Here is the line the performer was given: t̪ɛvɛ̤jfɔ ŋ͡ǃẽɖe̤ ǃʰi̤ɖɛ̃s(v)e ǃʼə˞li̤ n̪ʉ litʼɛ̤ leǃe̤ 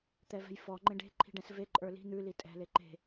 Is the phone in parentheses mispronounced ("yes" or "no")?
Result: no